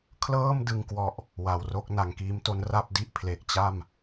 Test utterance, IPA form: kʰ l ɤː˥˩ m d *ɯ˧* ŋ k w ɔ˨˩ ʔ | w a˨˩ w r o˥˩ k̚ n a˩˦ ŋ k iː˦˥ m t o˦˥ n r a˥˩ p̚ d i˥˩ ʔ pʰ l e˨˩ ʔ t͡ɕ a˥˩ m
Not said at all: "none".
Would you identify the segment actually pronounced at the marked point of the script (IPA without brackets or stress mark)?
ɯ˧